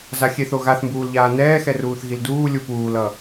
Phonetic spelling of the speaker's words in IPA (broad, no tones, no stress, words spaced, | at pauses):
zaxʲeθ oɣaθmbuːlʎaː nɛːxɛruːθ ɣilduː lʲupuːlʌ